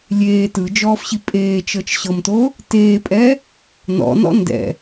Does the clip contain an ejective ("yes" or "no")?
yes